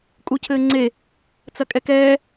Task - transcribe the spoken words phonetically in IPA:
kʼ u cʰ ɘː ŋ͡ǀ e | t͡s ɐ kʼ ɛ k ɛː

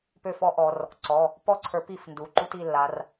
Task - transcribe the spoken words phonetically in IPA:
p ø˥˩ f ɔ˥ ʔ ɔ˩˧ r | ǀ ɔ˩˧˩ | p ɔ˥˩ ǀʰ ə˞˨˥ p i˩˧˩ f n d u˩˧ ǃ u˥ t i˥˩ lː a˩˧ r

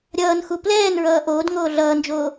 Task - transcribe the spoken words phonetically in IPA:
ɾʲ ʌː n x u p l ɛː n ɹ ʌː ʔ oː d ŋ oː ɮ ʌː n d͡ʒ oː

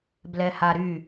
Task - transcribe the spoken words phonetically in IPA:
b l ɛ h a ɾ y

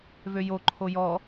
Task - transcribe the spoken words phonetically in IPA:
v ø j o ǃʰ o j ɔ

